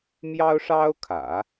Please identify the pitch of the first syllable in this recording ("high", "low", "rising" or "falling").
high